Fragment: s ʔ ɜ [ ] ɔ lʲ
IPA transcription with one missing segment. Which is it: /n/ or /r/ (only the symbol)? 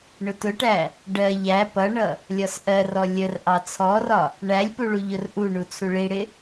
r